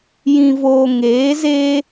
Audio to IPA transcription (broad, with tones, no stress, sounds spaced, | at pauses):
j ĩ˨ v oː˨ ŋ eː˨˦ z eː˦